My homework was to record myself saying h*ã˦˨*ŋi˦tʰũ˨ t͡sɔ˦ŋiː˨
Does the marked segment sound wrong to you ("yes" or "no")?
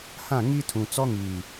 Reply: no